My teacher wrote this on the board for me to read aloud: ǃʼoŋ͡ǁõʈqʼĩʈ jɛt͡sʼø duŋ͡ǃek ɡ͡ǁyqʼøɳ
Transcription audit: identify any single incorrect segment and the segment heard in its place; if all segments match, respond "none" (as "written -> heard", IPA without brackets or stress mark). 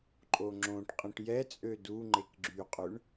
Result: none